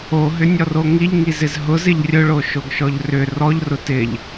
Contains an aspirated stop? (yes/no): no